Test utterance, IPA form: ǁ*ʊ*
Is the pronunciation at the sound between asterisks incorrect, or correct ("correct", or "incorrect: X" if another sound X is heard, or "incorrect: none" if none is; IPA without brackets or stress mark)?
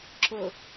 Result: correct